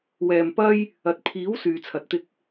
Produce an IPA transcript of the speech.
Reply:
wɛː˨mpɐ˧j | ɐ˧t̚ pʰiː˨˥w syː˨t͡sʰɐ˨t̚t̪ɪ˧k̚

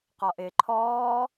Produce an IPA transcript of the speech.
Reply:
qɔʔɪː ǃʰɔː

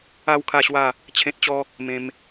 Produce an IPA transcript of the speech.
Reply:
a˥˧w kʰa˥˧ɕwa˥˧ | t͡ɕʰẽ˦t̚t͡ɕɔ˦ | mẽ˧m

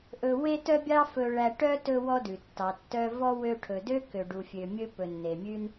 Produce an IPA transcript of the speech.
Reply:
ʔɵ˦ we˥tœ˥bʲɑ˥ fɵ˦ɭæ˦ ʈœ˥ tɵ˥wɔ˥dʉ˩tːɑ˨ tːœ˦ vɔ˥wø˦ ʈʰɵ˨dø˥kø˨ ɖu˨fʲø˨mʲɵ˦ pɵ˨nːe˩mʲʉ˦n

